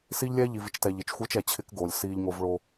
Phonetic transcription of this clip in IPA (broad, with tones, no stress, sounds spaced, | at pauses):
s i˦ ʎ lʲ ɛː˦ ʎ i˨ v i˦ t͡ʃ t ɛː˨ ʎ i˨ t͡ʃ xʷ ɯː˦ t͡ʃ ɛ˨ t͡ɕʰ ɪ˦ k ɡ oː˨ lʲ s iː˦ ʎ ŋ o˦ v ɭ o˦